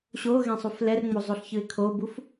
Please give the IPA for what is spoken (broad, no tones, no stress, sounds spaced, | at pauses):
ɕ o ɣ ẽ sˤ u f l ɛ r ŋ͡m o zˤ o ɬ ç ɯ ɪ̯ kʰ o b u f